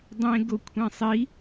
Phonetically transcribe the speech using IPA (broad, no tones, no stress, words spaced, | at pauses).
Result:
dˤẽ ɡokʷʰẽsˤi